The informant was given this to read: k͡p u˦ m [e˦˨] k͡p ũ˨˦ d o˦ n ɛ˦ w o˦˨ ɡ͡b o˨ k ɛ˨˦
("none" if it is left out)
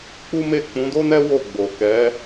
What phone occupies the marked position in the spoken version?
e˦˨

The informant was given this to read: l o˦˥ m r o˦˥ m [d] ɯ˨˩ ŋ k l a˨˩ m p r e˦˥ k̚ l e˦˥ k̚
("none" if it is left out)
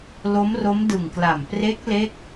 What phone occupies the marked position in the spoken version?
d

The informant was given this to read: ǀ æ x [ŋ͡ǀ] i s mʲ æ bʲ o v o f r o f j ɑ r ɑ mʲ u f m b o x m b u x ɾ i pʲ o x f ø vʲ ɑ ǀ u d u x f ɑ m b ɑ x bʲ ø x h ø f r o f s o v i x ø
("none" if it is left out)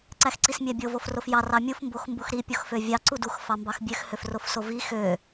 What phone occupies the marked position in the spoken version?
ǀ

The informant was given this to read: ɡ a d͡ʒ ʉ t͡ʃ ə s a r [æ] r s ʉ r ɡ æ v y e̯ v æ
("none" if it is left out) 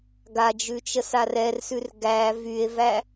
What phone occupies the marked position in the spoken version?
ɛ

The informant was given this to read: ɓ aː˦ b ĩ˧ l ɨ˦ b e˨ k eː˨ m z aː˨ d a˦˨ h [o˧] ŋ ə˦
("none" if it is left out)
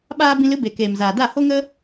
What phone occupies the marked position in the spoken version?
o˦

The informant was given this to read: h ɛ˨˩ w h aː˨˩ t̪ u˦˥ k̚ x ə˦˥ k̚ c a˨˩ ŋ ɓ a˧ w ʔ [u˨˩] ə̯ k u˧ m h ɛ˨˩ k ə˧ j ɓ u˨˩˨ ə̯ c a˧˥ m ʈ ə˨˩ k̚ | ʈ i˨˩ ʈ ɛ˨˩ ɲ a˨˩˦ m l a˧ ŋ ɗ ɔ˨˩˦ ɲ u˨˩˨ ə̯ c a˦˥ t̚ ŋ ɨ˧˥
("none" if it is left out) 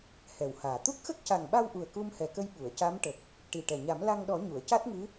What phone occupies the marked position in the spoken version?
u˨˩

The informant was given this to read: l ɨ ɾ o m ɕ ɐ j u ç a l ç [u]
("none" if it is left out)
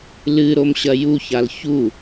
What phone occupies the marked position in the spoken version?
u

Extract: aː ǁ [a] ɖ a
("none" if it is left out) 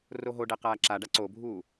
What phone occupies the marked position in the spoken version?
a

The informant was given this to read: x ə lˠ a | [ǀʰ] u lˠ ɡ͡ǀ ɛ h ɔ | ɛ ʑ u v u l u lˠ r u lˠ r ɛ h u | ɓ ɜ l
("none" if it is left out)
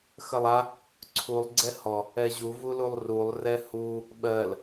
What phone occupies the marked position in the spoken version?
ǀʰ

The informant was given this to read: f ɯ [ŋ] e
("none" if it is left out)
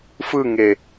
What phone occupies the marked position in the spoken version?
ŋ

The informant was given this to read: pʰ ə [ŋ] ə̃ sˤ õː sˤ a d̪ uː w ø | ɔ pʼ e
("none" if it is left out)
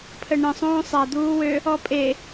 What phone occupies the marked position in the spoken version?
ɳ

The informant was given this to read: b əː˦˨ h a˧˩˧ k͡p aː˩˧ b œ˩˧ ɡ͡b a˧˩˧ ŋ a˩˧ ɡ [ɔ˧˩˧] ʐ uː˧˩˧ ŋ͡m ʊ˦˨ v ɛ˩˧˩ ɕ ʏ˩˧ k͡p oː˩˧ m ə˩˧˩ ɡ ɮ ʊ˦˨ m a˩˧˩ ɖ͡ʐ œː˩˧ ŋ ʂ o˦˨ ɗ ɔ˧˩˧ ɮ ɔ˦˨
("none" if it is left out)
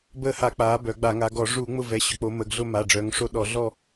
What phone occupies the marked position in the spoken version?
ɔ˧˩˧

